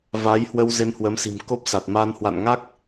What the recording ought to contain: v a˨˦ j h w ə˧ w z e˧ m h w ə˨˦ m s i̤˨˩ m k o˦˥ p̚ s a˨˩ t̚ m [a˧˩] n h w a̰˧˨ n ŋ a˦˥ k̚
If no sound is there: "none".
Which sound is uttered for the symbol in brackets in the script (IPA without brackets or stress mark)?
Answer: a˧